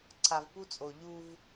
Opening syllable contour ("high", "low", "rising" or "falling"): low